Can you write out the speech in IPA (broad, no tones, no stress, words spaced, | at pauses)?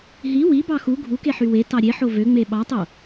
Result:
ɦi wibɑ xu ɡʱukeħy wetɑ ɾʲeħo vøŋ͡me ɓɑtˤo